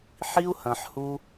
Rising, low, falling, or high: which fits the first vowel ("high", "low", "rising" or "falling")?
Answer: high